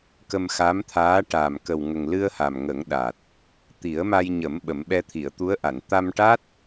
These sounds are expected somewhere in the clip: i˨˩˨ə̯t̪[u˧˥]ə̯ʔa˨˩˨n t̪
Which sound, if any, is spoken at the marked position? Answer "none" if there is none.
u˧˥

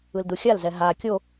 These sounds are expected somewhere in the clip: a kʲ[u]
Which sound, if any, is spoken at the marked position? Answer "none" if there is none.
o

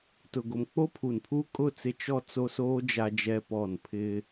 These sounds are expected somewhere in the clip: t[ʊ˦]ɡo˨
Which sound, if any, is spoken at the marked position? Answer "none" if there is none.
ʊ˨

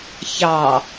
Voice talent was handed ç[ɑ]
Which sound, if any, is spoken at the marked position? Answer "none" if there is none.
ɑ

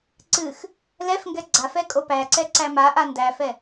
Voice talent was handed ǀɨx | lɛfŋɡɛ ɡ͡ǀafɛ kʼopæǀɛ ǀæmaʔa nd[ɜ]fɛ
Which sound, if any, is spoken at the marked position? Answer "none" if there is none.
æ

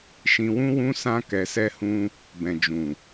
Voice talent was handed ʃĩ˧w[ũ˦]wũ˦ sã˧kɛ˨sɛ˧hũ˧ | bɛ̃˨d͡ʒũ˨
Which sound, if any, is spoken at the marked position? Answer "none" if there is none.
ũ˦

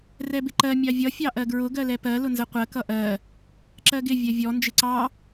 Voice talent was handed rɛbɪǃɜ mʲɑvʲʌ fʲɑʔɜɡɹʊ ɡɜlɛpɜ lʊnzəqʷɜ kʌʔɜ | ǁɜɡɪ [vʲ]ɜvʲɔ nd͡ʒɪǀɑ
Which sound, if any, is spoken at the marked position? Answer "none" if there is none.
vʲ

